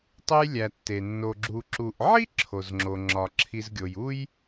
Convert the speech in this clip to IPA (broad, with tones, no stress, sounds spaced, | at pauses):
tˤ e˦ j lʲ æ˨ tː e˩ nː o˨ ɡ͡ǁ u˨ ǁ u˨ ʔ ʕ i˥ ǁʰ o˩ z ŋ͡ǁ o˩ ŋ͡ǁ ɒ˩ ǁʰ i˨ z ɡʲ o˩ j u˥ j